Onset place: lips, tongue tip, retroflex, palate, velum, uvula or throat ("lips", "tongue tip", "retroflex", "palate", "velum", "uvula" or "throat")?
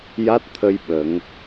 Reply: palate